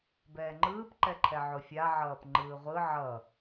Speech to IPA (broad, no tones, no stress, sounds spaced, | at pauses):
b ɛː ŋ͡ǃ ɯː p ǃ ɛ ǃʰ ɛ ʕ o fʲ a ʕ ʌː p ŋ͡ǃ ɯː ʁʷ ɯ ʕ ʌ